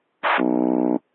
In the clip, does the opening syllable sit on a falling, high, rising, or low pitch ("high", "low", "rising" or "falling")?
low